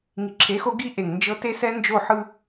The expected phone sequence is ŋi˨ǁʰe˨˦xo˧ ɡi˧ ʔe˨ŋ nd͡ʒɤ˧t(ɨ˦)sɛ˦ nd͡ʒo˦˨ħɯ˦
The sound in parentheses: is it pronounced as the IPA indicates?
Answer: no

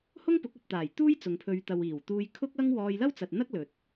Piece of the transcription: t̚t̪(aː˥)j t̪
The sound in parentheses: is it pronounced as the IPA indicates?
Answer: no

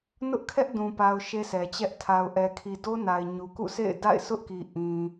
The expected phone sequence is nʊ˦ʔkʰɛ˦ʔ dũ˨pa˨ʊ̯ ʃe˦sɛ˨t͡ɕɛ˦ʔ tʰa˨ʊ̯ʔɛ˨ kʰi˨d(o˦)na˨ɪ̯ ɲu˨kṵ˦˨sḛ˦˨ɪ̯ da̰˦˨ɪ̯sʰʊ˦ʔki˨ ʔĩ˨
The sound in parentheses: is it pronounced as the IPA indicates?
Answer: yes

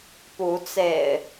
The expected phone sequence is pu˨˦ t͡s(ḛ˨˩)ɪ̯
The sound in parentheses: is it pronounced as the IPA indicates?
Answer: yes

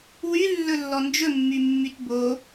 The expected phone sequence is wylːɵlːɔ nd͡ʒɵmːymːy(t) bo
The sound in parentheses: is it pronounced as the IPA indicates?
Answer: yes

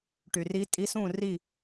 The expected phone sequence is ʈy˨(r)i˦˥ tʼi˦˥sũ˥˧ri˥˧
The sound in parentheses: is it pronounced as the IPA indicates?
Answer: yes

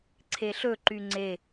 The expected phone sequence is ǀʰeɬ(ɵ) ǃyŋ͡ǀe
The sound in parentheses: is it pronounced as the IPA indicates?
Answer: yes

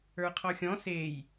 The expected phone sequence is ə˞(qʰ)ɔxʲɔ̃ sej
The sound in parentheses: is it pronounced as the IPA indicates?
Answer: yes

